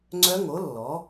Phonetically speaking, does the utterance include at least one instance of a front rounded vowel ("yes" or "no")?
yes